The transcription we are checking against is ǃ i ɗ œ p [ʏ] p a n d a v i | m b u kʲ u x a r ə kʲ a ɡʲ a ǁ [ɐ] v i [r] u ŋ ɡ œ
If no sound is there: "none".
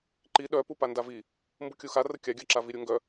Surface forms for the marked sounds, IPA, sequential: u, a, ɾʲ

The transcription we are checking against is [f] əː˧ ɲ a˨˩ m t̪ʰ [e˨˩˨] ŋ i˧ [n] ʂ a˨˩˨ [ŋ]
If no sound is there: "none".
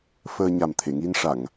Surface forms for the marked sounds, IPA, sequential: f, e˨˩˨, n, ŋ

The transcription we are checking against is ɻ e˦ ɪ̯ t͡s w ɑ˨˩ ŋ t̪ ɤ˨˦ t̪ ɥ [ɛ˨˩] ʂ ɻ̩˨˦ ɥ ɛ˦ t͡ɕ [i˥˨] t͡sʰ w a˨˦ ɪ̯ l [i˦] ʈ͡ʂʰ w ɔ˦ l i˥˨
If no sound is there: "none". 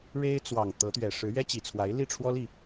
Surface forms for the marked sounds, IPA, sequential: ɛ˨˩, i˨˩, i˥˨

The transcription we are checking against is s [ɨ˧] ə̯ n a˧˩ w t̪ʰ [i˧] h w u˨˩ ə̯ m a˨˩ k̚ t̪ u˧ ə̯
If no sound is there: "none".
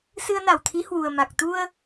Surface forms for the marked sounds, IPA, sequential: ɨ˧, i˨˦

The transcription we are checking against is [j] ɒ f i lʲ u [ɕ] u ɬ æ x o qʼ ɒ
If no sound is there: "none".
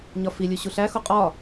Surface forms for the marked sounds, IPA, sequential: ɲ, ɕ

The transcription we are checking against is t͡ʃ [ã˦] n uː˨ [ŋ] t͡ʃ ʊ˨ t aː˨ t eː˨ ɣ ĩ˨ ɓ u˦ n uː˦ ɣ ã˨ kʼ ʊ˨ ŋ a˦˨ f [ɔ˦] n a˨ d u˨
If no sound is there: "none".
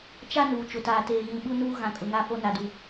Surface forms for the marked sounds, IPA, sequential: a˦, none, o˦

